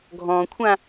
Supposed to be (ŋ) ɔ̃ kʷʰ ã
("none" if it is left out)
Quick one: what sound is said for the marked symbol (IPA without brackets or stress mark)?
ɡʱ